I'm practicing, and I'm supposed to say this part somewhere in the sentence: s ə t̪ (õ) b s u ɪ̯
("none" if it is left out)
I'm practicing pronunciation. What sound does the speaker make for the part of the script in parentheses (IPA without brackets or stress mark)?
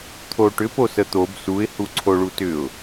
o